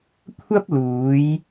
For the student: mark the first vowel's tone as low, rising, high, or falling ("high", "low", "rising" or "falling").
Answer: high